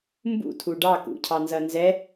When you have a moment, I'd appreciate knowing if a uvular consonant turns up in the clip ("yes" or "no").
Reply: no